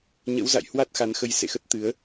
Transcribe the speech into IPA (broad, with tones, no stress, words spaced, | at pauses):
ɲə̰˧˥wza̰˧˨j hwa˦˥t̚xa˨˦nxə˧j sḛ˧˨xə˦˥t̚ t̪ɨ˨˦ə̯